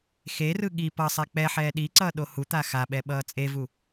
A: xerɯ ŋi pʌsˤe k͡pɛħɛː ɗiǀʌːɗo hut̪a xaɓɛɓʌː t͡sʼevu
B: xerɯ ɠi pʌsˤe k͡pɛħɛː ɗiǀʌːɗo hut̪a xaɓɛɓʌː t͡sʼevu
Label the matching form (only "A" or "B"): B